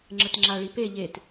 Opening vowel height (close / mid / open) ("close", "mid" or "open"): mid